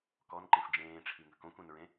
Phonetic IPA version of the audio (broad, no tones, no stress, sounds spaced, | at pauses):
k ɔ n ǃ ẽ f d͡ʒ ẽː ʈ͡ʂʰ i ŋ ə̤ k õ kʷ ẽ n ɹ ẽ